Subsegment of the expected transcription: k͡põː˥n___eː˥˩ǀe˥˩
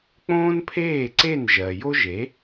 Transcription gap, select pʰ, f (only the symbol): pʰ